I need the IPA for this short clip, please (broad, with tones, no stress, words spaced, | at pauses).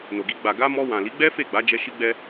no˨ɡi˧ ɡ͡ba˨ɡa˧ mɔ˧ wã˨li˨˦ɡ͡bɛ˦ fe˦˨ɡ͡ba˨˦d͡ʒɛ˧ ʃi˦ɡ͡bɛ˦